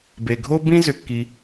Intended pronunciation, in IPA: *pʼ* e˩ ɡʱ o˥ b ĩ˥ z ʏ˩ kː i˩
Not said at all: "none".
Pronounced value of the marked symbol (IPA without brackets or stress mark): b